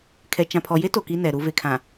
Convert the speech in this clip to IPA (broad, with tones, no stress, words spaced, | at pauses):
kʰɛ˨t͡ʃã˨pʰɔ˨je˦ to˨ki˦nɛ˨ ɾu˨ve˨ kʰã˨